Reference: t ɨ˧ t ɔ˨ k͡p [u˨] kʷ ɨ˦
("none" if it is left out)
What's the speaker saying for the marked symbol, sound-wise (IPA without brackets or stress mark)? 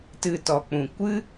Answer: ũ˨